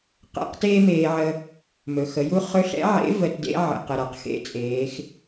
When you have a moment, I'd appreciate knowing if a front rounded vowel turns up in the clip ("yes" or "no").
no